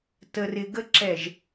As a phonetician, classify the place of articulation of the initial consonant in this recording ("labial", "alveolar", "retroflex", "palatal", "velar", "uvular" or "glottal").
alveolar